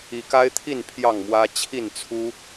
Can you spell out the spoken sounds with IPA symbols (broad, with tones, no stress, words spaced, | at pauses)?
i˨˦ka˦ɪ̯t̪ʰi˥˨n pʰjɑ˥˨ŋmwä˦ t͡ɕʰi˥˨nt͡sʰu˦